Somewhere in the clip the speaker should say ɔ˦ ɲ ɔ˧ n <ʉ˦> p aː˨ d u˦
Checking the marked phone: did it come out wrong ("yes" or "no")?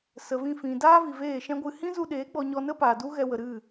yes